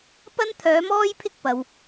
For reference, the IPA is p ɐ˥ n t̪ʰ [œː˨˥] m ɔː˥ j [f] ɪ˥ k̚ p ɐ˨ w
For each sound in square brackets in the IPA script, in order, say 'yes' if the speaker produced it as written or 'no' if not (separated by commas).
yes, no